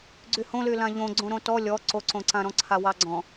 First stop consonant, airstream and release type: click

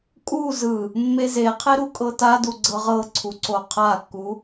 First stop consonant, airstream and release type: ejective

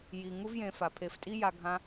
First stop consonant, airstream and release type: aspirated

